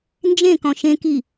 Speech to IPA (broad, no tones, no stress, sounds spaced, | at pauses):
n d͡ʒ ẽ k ɔ̃ ʃ ẽ k i